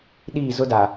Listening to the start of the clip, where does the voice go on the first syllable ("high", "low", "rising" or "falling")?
falling